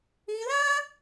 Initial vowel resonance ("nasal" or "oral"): nasal